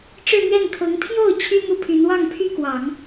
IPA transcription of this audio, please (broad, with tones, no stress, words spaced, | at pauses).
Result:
ʈ͡ʂɻ̩˥˧n̪ɥɛ˥˩nkʰɤ˧˥ŋ pʰjo˥˩ʊ̯ t͡ɕʰy˥ n̪u˥pʰy˧˥n wɑ˥˩ŋpʰy˥kwɑ˨˩˦ŋ